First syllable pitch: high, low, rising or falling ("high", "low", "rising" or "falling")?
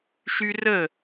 high